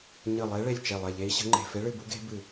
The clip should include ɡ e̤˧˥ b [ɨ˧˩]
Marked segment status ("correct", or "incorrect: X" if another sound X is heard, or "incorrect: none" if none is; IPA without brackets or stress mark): correct